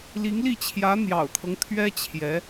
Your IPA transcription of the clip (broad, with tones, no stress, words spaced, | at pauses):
li˧˥ŋli˥˩ t͡ɕʰjä˧˥n̪jɑ̰˨˩ʊ̯t̪ʰɤ˦ŋ t̪ʰɥɛ˥t͡ɕʰjɛ˧˥